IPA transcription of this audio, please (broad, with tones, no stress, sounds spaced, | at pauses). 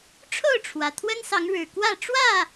ʈ͡ʂʰ o˥˨ ʊ̯ ʈ͡ʂʰ w ä˩ t̪ʰ w ə˦ n s ɑ˨˦ ŋ ɻ ɻ̩˨˩ k w ä˥˨ ʈ͡ʂ w ä˥˨